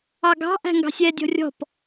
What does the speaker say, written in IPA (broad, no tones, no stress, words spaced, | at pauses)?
ɑɡɑ̤ ʔæ̤ŋɡɑ̤sʲɛ dʲɔ̤rʲɔ̤p